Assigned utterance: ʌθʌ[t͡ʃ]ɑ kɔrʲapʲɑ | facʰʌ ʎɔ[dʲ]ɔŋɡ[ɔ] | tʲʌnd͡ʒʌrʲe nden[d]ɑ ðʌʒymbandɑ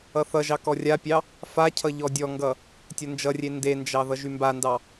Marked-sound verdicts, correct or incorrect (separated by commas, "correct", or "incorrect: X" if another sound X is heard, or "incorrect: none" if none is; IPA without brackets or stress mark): incorrect: ʒ, correct, incorrect: ʌ, incorrect: d͡ʒ